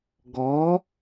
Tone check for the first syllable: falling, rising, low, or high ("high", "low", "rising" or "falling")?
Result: rising